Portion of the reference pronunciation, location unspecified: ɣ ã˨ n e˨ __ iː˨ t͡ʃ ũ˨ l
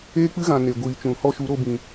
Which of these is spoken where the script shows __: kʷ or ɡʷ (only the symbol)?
ɡʷ